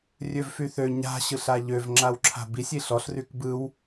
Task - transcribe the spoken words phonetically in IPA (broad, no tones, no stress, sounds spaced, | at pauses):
rʲ ø v f y θ ø ɲ a̤ ɕ ɯ ɬ a ʎ ø v ŋ͡ǁ a w ǁʰ a̤ b i sʲ i ɬ ɔ ɬ r y k b ɯ w